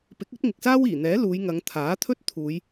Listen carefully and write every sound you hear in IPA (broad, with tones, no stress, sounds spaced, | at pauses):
p ɪ˨˥ k̚ ɵ˥ t̚ ŋ ɪ˨ k̚ s aː˥ w iː˨˩ n̪ ɛː˨˥ l uː˨˧ j ŋ ɐ˨˧ ŋ t̪ʰ aː˨˥ t̪ʰ ɵ˥ t̚ t̪ʰ uː˨˧ j